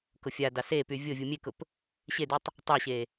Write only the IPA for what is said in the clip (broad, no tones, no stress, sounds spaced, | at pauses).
k ʊ fʲ a d ɑ s e p y vʲ ʊ vʲ u mʲ e k ʊ p | ɕ e d y tˤ | tˤ ɑ ɕ e